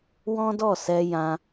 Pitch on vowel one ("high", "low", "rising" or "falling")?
high